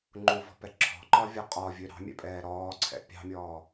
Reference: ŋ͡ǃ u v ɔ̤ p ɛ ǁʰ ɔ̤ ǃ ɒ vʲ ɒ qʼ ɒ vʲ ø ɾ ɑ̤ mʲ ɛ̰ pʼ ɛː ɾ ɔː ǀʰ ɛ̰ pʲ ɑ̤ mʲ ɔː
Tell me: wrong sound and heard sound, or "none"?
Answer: none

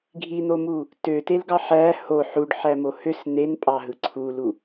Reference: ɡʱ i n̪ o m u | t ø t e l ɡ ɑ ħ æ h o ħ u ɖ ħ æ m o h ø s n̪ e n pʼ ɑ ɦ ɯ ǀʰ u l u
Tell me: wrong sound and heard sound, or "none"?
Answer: none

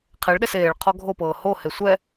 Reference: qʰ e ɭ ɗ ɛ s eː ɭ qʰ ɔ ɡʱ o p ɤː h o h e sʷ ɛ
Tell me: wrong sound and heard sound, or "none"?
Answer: none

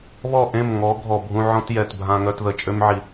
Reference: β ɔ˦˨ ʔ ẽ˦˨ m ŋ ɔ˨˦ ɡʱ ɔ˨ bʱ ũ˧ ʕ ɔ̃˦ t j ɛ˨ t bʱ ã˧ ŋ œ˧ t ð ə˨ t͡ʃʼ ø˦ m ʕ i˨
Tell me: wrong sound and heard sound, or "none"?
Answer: none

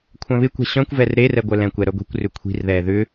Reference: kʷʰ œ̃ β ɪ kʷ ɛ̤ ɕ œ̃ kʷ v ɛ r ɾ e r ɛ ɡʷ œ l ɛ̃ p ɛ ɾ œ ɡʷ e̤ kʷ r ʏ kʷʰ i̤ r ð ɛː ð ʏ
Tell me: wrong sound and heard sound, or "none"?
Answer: p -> kʷ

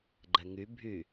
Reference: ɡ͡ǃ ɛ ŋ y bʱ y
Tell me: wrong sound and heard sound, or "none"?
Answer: none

